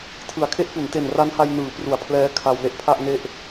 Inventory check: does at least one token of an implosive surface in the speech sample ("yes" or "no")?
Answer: no